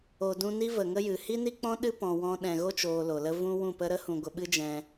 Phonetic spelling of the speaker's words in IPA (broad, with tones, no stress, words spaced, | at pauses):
o˨dũ˧ ni˦ və˨ŋə˦jɨ˨ hi˦ni˦k͡pɔ̃˦ ɗɨ˦pɔ̃˨wɔ̃˧ ɗɛ̃˨ɣo˦t͡ʃoː˨ lo˨lə˦ vũ˦wũ˦˨pə˦ ɾə˦hũ˨ɡʷə˨ ɓɨ˦d͡ʒɛ̃˧